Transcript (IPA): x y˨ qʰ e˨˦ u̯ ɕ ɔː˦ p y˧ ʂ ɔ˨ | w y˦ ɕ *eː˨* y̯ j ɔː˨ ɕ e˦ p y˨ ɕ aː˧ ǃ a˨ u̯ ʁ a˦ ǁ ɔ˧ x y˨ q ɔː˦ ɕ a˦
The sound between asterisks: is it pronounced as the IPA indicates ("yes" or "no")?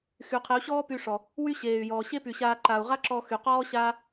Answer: yes